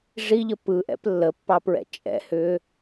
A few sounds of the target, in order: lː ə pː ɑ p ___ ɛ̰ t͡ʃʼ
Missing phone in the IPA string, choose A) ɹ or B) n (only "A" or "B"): A